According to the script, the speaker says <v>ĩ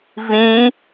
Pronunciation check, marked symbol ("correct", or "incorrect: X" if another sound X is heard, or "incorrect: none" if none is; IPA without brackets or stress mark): correct